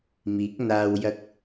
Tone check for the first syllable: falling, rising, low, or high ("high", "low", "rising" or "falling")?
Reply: rising